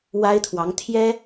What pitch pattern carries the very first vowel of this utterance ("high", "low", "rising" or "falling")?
high